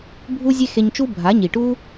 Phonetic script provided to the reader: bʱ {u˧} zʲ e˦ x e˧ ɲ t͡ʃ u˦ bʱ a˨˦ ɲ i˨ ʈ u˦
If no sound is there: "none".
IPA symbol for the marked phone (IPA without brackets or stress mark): u˦